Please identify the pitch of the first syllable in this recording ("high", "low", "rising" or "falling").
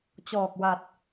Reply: low